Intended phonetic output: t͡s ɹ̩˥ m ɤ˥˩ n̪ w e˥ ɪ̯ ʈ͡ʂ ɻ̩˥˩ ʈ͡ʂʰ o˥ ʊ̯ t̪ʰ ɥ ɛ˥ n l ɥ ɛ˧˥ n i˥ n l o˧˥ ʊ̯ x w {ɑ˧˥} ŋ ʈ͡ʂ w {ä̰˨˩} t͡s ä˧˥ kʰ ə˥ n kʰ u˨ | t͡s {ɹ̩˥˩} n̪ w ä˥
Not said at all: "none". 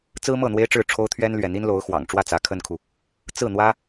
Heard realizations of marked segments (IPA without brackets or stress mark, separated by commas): ɑ̰˨˩, ä˥˩, ɹ̩˥˩